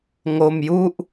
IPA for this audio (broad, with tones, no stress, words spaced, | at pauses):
ŋo˧mju˥˩ʔ